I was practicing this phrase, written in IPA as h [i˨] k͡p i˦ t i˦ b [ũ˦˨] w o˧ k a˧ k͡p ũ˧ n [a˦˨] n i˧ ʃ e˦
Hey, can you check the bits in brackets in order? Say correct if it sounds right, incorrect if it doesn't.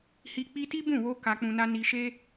incorrect: i˧, correct, incorrect: a˦

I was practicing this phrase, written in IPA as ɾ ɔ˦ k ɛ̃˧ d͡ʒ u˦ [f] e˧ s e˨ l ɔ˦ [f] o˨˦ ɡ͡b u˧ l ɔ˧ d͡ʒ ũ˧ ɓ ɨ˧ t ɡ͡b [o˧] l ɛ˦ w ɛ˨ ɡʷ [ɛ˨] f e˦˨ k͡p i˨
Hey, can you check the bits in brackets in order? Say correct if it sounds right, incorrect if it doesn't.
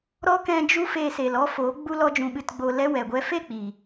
correct, correct, correct, incorrect: ɛ˦

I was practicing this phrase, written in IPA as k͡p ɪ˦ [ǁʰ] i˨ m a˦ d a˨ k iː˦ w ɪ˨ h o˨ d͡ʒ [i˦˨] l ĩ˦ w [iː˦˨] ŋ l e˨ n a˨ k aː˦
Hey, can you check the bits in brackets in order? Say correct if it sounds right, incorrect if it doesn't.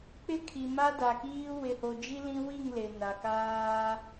incorrect: kʰ, incorrect: i˦, incorrect: i˦˨

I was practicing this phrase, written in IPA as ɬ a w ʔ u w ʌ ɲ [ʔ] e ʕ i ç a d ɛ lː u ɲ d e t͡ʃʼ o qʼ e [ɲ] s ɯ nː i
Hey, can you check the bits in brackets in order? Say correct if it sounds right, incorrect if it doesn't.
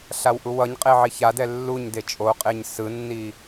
incorrect: qʼ, correct

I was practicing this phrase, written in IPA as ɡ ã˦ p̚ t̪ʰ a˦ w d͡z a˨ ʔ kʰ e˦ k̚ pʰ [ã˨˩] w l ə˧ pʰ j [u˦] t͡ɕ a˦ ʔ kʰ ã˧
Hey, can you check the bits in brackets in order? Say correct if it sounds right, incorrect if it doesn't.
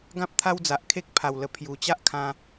incorrect: a˨˩, incorrect: u˨˩

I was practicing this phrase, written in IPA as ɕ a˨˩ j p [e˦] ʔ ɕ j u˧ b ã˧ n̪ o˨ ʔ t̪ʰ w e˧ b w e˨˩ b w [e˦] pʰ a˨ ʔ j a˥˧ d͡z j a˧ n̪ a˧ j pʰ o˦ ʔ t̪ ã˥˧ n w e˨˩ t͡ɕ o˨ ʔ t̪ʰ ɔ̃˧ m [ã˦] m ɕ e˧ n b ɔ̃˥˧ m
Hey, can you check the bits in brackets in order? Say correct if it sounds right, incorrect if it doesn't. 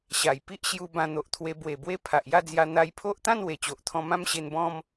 incorrect: i˦, correct, correct

